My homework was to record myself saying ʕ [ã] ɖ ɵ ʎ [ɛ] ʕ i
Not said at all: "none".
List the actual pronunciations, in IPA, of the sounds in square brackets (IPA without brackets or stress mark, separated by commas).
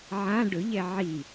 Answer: ã, ɛ